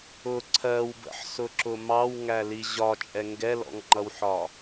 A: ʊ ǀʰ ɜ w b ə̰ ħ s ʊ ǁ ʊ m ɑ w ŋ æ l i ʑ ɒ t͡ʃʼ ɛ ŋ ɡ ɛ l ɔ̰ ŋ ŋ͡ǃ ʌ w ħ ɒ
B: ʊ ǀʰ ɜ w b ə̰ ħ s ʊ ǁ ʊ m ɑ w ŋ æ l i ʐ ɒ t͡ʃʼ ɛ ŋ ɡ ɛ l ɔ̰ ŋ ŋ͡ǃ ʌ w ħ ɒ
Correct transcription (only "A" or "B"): A